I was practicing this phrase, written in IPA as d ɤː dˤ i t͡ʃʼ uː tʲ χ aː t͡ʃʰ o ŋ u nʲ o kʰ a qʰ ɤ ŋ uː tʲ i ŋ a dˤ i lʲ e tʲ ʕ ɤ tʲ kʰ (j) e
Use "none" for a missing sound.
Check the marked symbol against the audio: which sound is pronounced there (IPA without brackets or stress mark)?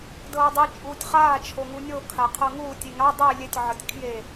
j